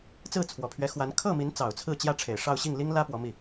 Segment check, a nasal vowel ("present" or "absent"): absent